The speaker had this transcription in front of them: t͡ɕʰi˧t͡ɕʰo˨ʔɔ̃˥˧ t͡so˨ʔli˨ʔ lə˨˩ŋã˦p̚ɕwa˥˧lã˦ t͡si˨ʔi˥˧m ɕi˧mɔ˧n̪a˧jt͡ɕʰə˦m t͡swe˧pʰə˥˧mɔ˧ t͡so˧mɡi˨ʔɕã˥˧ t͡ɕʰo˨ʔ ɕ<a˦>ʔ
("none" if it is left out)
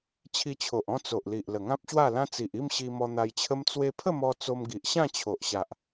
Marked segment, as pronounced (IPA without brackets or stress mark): a˨